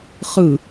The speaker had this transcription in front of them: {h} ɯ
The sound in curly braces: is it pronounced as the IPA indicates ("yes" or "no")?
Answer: no